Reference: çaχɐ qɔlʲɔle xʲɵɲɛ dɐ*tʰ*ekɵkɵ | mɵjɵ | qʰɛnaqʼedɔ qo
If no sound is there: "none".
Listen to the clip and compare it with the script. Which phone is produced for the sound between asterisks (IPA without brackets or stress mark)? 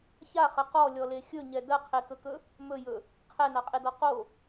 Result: qʰ